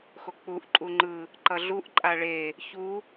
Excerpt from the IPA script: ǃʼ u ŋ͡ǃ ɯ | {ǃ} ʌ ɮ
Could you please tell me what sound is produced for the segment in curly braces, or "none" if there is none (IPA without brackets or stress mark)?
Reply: ǃ